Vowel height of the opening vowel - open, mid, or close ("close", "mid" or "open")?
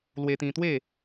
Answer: mid